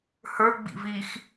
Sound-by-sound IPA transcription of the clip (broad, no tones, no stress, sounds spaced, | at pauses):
h ə˞ ɡ͡b ḭ v i x